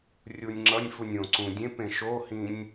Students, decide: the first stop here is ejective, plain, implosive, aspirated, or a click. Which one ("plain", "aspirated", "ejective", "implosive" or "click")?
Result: click